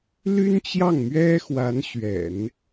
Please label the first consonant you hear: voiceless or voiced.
voiced